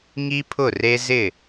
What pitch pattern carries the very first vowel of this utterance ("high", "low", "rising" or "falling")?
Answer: high